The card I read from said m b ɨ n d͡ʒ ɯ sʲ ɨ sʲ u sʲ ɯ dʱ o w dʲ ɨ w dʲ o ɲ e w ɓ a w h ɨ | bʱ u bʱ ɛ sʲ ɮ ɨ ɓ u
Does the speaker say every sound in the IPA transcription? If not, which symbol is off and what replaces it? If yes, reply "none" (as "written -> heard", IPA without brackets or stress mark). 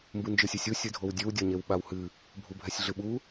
none